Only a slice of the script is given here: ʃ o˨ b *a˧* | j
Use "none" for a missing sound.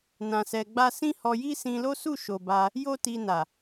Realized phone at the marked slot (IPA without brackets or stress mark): a˧